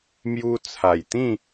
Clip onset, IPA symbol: m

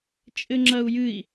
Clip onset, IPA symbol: t͡ʃʼ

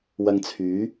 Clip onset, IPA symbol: w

